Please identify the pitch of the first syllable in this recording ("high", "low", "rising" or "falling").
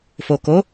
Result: low